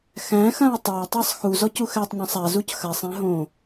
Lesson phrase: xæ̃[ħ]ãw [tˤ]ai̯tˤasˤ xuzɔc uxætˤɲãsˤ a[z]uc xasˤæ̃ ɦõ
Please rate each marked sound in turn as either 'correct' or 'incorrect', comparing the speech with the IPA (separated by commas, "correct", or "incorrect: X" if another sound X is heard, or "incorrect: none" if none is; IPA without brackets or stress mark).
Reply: incorrect: x, correct, correct